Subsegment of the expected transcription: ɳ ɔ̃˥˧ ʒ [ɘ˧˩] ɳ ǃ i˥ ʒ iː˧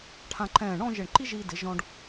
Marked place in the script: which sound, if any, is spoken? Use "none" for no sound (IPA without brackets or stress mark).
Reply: ɘ˧˩